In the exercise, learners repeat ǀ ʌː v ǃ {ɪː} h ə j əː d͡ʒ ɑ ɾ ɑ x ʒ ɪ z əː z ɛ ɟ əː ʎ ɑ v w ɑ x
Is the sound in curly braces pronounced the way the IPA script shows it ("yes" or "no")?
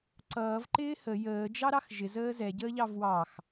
yes